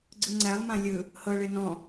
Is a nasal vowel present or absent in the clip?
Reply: present